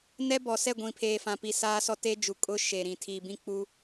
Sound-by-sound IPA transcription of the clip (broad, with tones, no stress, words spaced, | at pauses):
nɛ˦bɔ˨sɛ˦˨ ɡʷĩ˨pʰeː˨fã˨pi˨ saː˦sɔ˦ te˦d͡ʒu˨ kʼʊ˦ ʃe˨ɾĩ˨ tʰiː˨bĩ˦k͡pu˦